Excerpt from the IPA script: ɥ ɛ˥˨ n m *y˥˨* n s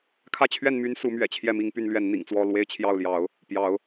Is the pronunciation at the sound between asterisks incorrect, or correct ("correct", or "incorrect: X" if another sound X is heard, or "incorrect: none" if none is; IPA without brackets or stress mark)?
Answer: incorrect: y˦